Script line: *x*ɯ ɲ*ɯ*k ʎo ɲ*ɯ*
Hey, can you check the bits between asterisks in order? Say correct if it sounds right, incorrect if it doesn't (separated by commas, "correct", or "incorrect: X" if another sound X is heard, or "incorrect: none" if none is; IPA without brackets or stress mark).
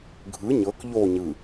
incorrect: ɡʱ, incorrect: ɤ, correct